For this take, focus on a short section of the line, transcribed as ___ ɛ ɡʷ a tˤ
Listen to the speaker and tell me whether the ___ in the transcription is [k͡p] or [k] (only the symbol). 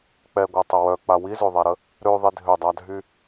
k͡p